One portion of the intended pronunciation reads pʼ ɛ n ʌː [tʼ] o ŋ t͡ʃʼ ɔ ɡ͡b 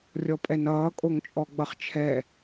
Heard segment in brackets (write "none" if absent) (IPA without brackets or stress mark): kʼ